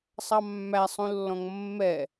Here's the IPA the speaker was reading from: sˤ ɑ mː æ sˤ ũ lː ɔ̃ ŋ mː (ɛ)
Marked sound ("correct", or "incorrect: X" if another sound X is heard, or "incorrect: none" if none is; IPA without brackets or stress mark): correct